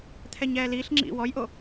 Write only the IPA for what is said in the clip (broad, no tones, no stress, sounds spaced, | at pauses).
t̪ʰ ɛ ɲ ɛː l iː ɬ ŋ͡ǁ ḭ w ɔ j ʔ o